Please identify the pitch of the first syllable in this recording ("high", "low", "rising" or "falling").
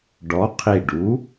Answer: rising